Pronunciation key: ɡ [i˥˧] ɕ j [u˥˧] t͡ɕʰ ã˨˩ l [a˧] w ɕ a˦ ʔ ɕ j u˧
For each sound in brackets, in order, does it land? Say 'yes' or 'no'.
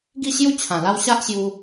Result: yes, no, no

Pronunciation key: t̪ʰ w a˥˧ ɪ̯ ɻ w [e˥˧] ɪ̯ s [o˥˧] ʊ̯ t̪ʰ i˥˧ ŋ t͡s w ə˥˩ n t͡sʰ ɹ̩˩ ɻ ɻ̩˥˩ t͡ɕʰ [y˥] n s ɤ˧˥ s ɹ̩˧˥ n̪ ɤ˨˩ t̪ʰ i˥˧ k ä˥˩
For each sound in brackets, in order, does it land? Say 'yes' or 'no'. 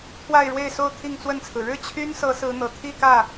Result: yes, yes, yes

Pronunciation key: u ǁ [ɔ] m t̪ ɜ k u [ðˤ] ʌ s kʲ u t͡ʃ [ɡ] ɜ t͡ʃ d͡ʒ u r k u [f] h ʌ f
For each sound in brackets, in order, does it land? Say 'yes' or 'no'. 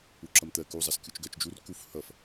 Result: no, no, yes, yes

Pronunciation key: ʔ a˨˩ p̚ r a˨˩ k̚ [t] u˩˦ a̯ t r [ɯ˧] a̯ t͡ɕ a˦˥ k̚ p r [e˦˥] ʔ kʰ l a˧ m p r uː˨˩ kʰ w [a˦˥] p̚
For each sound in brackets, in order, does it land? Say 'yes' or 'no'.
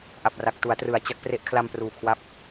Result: yes, no, yes, yes

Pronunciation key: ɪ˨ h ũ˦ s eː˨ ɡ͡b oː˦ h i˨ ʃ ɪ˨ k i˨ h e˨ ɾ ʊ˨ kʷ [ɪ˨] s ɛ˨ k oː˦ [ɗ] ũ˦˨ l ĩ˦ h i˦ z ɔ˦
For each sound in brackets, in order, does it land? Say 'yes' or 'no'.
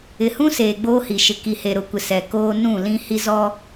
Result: yes, no

